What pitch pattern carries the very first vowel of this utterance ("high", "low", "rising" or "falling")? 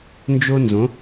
high